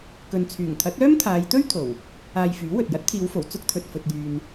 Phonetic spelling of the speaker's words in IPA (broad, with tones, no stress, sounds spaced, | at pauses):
k ɵ˨ n t͡sʰ yː˨˩ ŋ t̪ʰ ɐ˨˥ t̚ œː˥ m t̪ʰ aː˨˧ j t̪ ɵ˥ ɥ t̪ʰ o˨˩ w | aː˧ j f yː˨˥ w ɵ˨ t̚ j ɐ˨˥ t̚ t̪ʰ iː˨˧ w f o˨˩ w t͡s ʊ˥ k̚ t̪ʰ ɵ˨ t̚ f ɵ˨ t̚ j yː˨ n